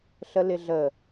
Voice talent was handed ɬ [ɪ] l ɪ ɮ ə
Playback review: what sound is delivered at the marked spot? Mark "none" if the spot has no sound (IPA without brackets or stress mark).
ə